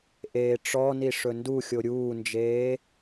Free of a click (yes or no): yes